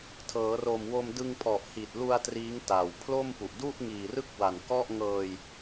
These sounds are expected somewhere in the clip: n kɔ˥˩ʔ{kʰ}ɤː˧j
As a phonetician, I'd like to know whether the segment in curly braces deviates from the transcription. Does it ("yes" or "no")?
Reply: yes